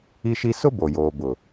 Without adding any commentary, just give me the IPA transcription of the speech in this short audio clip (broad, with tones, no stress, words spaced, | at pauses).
i˦ʃi˦ sʊ˦ bo˨joː˨bʊ˨